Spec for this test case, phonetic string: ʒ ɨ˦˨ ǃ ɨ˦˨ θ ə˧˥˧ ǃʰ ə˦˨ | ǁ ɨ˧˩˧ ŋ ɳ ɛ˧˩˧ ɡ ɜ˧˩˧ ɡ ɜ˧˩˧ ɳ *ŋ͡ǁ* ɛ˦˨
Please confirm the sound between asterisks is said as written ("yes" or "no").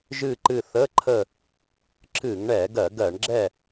no